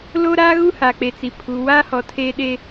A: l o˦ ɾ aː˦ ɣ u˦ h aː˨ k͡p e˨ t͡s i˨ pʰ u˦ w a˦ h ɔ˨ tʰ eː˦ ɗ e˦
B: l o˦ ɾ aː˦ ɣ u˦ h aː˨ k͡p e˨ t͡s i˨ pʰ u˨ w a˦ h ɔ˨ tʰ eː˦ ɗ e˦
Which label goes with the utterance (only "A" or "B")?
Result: B